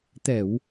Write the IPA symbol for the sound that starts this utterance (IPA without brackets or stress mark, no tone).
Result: t̪